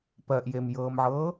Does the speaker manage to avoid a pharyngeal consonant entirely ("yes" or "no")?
no